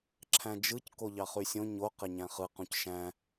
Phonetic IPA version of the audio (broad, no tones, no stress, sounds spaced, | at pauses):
ǁʰ æ̃ d͡ʒ ɯ c k o ʎ ɑ χ y sʲ õ ɲ o q e ɲ æ̃ χ ɯ q ũ c ʃ æ̃